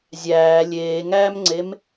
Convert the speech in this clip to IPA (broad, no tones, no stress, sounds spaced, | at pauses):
zʲ æː lʲ eː ŋ æː m ŋ͡ǀ e m